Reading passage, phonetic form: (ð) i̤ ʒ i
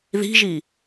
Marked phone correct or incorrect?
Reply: correct